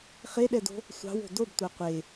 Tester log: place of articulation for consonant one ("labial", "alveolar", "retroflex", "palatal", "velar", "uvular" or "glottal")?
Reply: uvular